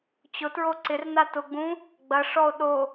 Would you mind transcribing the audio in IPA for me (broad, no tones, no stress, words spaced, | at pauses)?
t͡ɕʊtɹo ǀɪrna tʊɡ͡bũ | ɡ͡bɐʂɔo̯ ɗo